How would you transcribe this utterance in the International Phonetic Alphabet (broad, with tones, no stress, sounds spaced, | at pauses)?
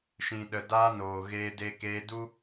ʃ ĩ˨ ɗ ə˨ d aː˧ n oː˨ ɣ eː˧ d eː˧ k eː˧ d u˦